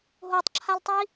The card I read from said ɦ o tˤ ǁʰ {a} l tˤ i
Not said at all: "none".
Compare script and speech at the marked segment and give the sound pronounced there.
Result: a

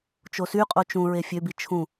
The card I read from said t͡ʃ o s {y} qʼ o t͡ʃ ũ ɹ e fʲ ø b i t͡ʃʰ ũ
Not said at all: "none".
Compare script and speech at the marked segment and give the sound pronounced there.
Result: y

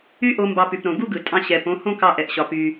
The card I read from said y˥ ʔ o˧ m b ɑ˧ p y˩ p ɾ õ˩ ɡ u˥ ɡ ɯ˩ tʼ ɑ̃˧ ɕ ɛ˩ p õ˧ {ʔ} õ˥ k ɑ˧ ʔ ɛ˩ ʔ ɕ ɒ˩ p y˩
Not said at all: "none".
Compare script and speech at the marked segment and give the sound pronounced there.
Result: h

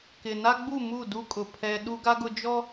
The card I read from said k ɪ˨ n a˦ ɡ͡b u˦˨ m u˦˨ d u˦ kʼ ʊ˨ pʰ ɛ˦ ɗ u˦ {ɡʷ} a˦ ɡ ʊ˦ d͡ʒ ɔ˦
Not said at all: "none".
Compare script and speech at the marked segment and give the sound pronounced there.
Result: ɡ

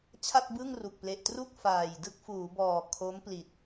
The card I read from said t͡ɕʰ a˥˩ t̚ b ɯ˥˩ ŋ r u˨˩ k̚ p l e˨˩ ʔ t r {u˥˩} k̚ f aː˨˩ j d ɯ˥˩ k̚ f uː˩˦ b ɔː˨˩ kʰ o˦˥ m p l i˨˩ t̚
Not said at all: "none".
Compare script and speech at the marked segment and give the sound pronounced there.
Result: u˥˩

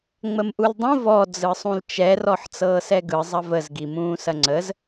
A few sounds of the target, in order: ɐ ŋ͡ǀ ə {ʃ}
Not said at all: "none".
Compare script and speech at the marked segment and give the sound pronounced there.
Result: z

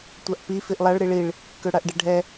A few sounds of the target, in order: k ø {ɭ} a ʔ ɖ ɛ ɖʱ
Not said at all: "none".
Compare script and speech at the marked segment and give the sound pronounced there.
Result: ɽ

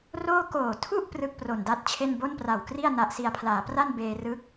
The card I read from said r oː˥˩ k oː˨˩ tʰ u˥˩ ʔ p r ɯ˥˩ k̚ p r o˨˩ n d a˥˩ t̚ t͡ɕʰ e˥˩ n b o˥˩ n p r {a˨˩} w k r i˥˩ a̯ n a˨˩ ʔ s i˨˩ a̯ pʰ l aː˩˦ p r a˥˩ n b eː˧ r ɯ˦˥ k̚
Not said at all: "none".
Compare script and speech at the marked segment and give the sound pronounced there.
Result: a˨˩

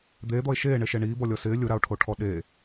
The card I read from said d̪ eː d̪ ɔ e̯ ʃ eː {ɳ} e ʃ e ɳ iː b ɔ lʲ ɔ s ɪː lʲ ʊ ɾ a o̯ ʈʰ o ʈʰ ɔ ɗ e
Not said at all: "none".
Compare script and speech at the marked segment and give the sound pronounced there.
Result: ɳ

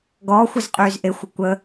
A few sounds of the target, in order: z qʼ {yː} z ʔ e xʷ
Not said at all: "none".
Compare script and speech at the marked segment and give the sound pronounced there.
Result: yː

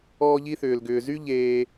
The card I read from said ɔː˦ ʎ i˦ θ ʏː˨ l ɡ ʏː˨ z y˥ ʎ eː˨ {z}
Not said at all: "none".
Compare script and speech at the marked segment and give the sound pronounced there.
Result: none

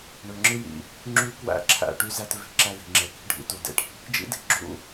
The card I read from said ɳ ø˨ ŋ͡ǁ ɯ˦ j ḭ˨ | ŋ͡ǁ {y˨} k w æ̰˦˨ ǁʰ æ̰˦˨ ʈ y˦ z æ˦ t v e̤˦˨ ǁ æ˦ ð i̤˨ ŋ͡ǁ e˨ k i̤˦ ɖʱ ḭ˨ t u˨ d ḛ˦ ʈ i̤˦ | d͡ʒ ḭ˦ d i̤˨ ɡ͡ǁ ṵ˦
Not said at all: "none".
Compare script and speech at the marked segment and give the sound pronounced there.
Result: y˦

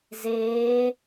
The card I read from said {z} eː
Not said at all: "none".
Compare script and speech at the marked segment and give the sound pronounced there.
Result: z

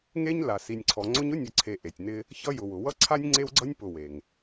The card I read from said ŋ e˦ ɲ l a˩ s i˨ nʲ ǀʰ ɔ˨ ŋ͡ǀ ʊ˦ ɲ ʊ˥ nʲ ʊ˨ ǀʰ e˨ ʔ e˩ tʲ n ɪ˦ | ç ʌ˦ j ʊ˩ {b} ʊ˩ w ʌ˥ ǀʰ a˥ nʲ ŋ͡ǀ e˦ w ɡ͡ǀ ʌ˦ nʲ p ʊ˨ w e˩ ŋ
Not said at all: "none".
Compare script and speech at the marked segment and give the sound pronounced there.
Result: w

